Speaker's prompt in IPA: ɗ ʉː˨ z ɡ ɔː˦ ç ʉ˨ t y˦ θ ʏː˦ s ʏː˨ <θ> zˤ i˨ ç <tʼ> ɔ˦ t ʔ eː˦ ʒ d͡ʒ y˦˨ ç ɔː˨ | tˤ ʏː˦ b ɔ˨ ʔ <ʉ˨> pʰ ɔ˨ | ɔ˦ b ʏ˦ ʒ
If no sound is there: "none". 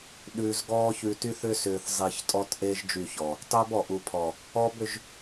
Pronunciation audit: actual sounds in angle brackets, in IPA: θ, tʼ, u˨

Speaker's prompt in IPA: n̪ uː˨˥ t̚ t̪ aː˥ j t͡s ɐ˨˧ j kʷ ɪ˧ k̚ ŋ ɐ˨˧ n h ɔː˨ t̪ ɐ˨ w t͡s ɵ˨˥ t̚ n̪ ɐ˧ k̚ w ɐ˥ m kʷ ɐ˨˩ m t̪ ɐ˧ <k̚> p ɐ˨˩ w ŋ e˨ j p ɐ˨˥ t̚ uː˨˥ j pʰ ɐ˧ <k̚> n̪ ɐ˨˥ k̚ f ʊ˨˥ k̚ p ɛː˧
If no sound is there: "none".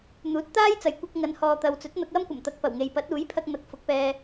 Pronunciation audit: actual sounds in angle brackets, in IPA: k̚, k̚

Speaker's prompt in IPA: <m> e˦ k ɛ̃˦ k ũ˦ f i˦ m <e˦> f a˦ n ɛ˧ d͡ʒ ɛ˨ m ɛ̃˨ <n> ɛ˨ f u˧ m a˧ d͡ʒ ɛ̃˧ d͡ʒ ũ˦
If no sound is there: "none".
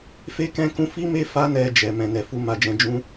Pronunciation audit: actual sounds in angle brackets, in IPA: f, e˦, n

